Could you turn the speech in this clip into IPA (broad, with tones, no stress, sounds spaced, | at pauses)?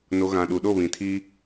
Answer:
n o˨ ɣ ã˨ ɗ u˨ ɗ o˦˨ β ĩ˨ tʰ i˦